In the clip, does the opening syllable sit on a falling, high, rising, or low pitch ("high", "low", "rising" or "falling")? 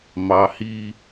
low